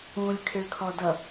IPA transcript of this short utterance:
ũ lʲ kʰ ɪ ɭ kʰ ɔ d ʌ

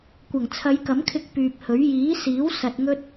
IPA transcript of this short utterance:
kʷ ɐ˨˩ ŋ t͡sʰ ɐ˨˧ j k ɐ˨˥ m kʰ ɪ˧ k̚ p yː˨ p̚ h ɵ˨˥ ɥ j iː˨˥ s iː˨˥ w s ɐ˨ t̚ ŋ ɵ˧ t̚

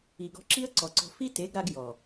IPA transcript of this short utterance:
i˨ ɡ ɔ̤˧ ǁ i˦ ə̯ ǀ ɔ˨ ǀ ɔ̤˧ f i˦ t e˨˦ ɡ ɾ a˧ ɡ j ɔ˨

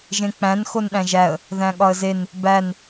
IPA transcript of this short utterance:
ʒ ẽ k͡p æ̃ n x o n ɗ æ̃ ʒ æ ə̯ | ð æ̃ ɠ ɒ ə̯ z e n | b æ n

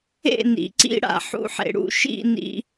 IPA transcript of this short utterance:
ḛ˦˨ n ḭ˨ ǀ ḭ˦ ɽ a̰˨ ħ ṵ˧ ħ ḛ˨ ɽ ṵ˧ ʃ ḭ˦˨ n ḭ˧

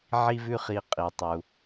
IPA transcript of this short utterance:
ʕ i˥ v ʉ˥ χ i˧ qʼ i˩ tˤ u˩

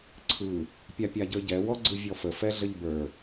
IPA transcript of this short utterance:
ǀʰ ɯ | pʲ a pʲ a ɟ ə˞ ɟ ɛ w ɔ ɡ͡ǀ ɯ vʲ ɔ f ə f ɛ ɮ ə ʎ b ə˞

